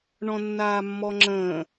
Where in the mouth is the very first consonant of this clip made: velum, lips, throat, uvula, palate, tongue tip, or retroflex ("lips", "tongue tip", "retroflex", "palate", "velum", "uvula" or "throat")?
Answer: retroflex